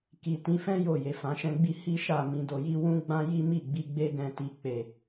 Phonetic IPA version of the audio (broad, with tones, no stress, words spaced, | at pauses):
ki˨tĩ˨˦fɛ̃˦ jo˦˨ je˨fã˨˦ʃɛ̃˦ɡ͡bi˦ hi˦ʃa˦˨ mĩ˧do˧ji˦ wũ˦ɡ͡bã˦ji˦ mi˦˨ɡ͡bi˧ɡ͡be˦ ɡɛ̃˧ti˧ k͡pe˨